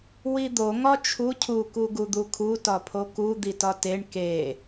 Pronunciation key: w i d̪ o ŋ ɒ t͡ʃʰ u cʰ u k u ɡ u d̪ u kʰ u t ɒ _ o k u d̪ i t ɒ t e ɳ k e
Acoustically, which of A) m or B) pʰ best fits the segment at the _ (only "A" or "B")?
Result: B